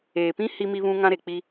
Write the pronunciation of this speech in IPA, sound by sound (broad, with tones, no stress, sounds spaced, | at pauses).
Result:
eː˨ p ĩ˦ h i˦ m i˦ β ũ˦ ŋ ã˦ ɾ e˨ k͡p i˦